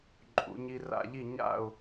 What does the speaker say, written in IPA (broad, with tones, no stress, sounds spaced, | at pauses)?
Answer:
ǃʼ ṵ˩˧ ɲ i˧ r a̰˥˩ ʎ i˥˩ ɲ a̰˥˩ ʊ̯